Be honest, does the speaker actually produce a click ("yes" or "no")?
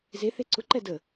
yes